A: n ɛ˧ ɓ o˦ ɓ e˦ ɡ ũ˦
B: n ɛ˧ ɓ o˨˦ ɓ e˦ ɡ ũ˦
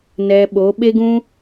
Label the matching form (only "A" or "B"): B